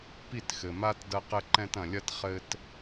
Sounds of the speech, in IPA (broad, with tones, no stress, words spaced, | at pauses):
pi˦˨txɘ˨ma˦t dɐ˦qɘ˦ǃɛ̃˦t ɐ̃˨lʲɐ˦t χɘ˦t